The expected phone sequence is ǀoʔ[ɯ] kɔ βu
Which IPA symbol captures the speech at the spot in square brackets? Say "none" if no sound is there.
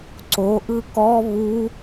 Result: ɯ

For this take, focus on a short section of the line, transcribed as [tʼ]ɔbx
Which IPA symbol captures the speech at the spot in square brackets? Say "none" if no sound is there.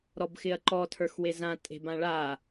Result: ɾ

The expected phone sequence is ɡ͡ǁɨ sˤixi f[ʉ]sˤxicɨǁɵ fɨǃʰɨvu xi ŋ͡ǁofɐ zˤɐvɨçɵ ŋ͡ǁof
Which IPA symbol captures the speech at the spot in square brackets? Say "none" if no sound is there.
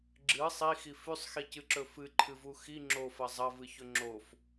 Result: ʉ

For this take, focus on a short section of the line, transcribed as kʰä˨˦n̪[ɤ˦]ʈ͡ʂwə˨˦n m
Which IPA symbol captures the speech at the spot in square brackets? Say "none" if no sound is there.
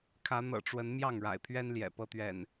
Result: ɤ̰˨˩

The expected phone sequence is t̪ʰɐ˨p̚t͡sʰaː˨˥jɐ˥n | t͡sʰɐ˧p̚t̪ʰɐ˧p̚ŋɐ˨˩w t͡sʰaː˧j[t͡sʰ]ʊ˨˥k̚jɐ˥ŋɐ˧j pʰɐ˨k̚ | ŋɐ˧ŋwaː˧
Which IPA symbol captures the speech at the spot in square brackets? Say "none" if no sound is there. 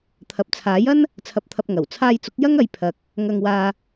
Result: t͡s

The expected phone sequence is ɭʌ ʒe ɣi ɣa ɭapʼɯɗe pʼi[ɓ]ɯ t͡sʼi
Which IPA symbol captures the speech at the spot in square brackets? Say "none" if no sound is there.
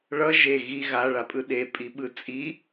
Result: ɓ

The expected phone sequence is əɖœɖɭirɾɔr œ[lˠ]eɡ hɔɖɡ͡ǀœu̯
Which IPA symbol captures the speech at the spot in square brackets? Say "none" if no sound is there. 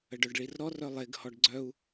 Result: lˠ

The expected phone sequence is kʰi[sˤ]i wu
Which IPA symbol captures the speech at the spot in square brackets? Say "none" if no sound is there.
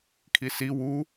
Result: s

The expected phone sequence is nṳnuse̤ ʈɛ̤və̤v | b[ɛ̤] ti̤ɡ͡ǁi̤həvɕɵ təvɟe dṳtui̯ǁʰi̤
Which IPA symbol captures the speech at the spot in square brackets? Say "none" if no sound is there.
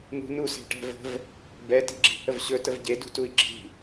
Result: ɛ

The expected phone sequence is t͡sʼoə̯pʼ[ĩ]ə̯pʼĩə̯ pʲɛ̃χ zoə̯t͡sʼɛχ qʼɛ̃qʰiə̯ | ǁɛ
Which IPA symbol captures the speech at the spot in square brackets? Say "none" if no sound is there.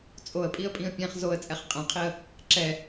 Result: i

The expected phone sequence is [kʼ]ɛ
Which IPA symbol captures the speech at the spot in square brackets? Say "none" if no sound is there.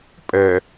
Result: pʼ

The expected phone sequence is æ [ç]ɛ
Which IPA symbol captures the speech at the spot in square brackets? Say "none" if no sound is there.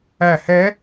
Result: h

